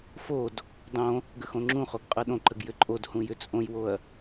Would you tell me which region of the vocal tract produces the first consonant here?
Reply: lips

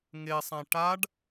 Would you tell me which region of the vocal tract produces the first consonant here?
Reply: velum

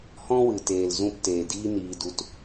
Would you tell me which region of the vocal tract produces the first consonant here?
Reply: throat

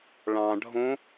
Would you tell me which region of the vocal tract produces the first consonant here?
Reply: retroflex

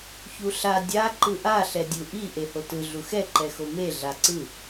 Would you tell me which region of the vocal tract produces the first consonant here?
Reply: palate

